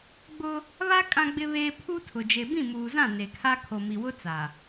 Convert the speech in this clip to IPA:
ɡ͡bʊ˦ | βa˦ kʼã˦ɡ͡bɪ˦βeː˦ pʰu˦tʰʊ˨ d͡ʒe˨bĩ˦˨muː˨zã˦˨ ne˨kʰa˦ kʰo˨mi˨wʊ˦ t͡sa˨

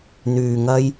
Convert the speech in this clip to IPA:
n̪yː˧ŋɐ˥j

